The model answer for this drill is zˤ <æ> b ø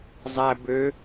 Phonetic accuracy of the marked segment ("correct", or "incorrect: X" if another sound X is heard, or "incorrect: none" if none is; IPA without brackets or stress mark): correct